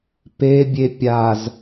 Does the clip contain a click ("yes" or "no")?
no